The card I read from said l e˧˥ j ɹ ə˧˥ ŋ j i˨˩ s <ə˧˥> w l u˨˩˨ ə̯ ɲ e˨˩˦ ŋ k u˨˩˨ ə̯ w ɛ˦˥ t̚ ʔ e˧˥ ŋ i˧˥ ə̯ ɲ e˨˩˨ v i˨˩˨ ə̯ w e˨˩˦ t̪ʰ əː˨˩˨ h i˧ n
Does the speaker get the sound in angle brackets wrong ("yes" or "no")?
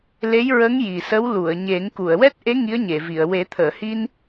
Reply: no